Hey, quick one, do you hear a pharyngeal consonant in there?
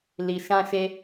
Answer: no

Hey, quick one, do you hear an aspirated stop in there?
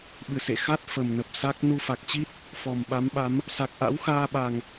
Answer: no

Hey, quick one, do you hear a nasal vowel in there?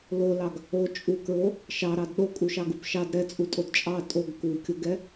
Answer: no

